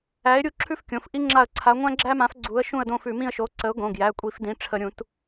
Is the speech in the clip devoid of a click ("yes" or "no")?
no